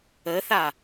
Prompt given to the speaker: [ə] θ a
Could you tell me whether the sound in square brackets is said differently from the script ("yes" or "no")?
no